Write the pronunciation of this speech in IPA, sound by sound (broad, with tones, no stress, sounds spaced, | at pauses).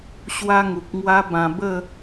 ɕ w a˦ ŋ u˨ k̚ ŋ w a˦ b ã˧ b ə˥˧